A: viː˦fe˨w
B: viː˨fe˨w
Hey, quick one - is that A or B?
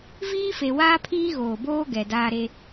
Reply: A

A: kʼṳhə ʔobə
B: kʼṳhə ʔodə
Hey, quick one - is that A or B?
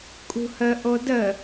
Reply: B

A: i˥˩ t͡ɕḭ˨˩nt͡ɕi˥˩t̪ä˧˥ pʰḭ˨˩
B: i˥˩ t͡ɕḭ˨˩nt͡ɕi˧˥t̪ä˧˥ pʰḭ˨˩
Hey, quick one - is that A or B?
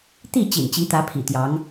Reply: B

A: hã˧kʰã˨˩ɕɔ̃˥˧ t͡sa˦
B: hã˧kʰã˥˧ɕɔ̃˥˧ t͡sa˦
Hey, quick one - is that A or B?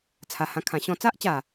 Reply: A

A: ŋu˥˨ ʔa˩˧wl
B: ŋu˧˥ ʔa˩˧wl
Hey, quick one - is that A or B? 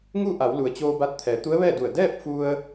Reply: A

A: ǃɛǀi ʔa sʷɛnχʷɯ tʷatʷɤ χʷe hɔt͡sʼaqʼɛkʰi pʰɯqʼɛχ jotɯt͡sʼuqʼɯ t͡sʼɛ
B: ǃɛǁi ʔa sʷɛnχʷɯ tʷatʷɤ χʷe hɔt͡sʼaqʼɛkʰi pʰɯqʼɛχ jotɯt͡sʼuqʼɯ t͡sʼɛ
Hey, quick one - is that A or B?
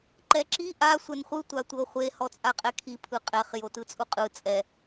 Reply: B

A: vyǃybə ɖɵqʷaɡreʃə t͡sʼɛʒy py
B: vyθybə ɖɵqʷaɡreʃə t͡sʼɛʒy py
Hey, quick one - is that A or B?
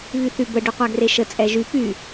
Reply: B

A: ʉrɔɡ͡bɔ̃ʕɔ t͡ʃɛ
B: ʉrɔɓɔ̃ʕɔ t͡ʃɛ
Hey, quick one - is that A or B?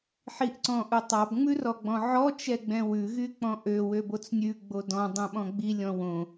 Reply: A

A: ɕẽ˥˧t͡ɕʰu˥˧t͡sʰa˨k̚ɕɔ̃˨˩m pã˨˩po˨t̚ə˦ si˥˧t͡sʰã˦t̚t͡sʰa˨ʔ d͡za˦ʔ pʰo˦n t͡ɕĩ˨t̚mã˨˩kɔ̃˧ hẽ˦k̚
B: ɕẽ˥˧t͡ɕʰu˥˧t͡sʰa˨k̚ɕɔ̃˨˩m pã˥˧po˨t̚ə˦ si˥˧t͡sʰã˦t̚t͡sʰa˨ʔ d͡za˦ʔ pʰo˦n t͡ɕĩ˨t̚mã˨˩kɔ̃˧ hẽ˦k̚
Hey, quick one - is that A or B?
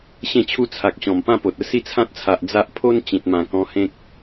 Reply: B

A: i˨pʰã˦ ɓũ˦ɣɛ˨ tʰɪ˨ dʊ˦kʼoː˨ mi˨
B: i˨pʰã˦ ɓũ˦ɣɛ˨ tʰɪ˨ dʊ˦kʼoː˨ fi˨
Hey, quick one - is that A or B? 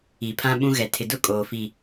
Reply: B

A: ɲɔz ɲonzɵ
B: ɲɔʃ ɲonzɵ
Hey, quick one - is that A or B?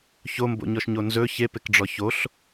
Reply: B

